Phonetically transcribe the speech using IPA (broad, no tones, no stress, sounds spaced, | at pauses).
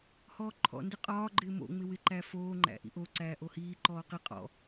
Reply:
h ɔː ǃʰ ɔ̰ n d ɪ qʼ ɒː ɡ͡ǃ ɪː m o̰ ŋ͡m ɪ w ɪ ǃ æ f oː ŋ͡ǃ æ̰ ʔ ḭ ʔ o ǀ æː ʔ o h iː ǃ ɔː q i qʼ ɔ̰